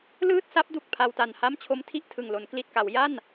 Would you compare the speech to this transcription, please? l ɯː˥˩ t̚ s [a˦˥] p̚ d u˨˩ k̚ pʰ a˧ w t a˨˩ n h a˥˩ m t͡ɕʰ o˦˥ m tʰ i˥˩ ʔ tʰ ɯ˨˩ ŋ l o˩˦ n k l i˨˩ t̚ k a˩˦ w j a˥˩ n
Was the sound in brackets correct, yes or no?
yes